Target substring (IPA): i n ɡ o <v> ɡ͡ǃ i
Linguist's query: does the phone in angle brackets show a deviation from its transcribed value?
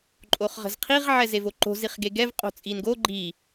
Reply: yes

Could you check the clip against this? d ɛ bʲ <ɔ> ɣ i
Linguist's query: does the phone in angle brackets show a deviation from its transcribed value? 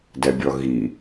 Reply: no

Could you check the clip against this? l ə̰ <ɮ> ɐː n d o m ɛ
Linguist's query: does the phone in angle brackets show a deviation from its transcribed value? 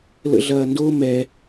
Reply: no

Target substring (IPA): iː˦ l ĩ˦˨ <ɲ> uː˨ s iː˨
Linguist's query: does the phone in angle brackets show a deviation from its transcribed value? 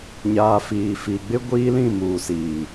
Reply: yes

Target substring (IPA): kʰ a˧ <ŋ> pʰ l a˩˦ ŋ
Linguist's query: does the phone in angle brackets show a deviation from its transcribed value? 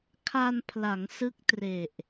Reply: yes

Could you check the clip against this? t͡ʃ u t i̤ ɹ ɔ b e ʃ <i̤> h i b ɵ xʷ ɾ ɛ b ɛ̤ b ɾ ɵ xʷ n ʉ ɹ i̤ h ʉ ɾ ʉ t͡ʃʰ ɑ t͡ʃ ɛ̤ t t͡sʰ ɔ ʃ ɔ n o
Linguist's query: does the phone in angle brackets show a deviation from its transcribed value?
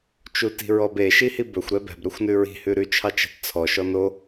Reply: yes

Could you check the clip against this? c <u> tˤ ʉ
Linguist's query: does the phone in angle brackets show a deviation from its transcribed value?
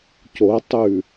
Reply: yes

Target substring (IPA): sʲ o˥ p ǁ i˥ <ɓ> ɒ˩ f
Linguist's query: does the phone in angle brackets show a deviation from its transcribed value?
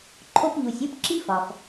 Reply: yes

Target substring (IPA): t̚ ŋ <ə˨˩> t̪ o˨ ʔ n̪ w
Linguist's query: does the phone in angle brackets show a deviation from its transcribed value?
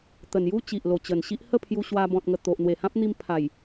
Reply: no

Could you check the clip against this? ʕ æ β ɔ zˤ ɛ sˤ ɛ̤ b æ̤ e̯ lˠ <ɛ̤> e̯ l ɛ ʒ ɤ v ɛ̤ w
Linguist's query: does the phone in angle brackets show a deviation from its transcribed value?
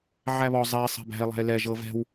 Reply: yes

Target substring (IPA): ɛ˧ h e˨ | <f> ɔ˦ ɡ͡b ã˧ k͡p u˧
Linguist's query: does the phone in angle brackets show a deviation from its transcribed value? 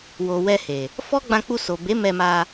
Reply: no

